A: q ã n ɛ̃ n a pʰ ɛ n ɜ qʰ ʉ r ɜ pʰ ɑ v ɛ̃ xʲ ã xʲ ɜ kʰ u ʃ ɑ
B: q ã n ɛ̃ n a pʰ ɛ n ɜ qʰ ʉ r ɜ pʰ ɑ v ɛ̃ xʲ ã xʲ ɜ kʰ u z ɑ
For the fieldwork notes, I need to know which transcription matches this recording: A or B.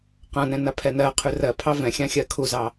B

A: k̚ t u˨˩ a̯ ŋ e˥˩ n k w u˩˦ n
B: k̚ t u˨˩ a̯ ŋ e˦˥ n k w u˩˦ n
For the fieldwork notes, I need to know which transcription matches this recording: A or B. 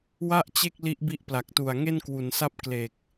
A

